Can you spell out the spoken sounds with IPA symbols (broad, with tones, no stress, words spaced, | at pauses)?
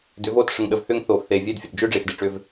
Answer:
dʏ˨˦voː˦˨t ʂə˨ŋɗə˨v θʏː˦ŋθoː˨x θeː˨vʲeː˦dfʲə˨d d͡ʒʏː˦ɖ͡ʐe˨x de˨ʈ͡ʂʏː˦v